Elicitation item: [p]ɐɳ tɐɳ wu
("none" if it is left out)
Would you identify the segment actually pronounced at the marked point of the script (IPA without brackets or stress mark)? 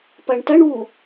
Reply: p